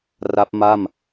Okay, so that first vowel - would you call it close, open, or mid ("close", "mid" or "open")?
open